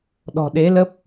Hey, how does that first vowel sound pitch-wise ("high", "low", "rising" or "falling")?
low